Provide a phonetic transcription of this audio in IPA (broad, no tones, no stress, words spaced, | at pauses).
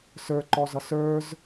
sə˞ǃɔzʌ sə˞z